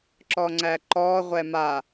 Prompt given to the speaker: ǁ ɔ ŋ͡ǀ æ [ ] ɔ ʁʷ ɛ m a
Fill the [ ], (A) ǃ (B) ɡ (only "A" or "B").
A